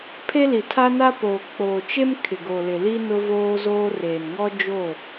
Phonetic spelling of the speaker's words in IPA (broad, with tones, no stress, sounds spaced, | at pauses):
pʰ e˦ l i˨ tʰ a˦ n a˦ p oː˨ k͡p oː˨ t͡ʃ e˦ m kʰ ɪ˨ ɡ o˨ l ɪ˨ l i˦ n ʊ˦ v oː˦ z oː˦ r eː˨ n ŋ ɔ˦ d͡ʒ o˦˨